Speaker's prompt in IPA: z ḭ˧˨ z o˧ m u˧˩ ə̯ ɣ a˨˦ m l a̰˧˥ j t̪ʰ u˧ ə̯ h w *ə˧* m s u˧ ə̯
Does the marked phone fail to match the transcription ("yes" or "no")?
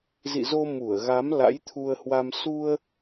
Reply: yes